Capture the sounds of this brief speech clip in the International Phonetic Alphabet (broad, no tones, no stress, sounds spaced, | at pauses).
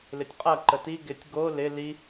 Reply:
l ɪ tʲ qʼ ɐ ǃ ə t i ɡ ɪ tʲ ɡ o l ɪ l i